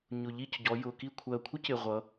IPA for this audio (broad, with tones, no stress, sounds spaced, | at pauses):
ɲ ʊ˨˩ ʎ i˦˨ c ɟ ɔ˩˧ j ʊ˨˩ k i˦˨ kʷʰ ɜ˨˩ kʷʰ ɪ˦˥ c ɪ˨˩ ʁʷ ʌ˩˧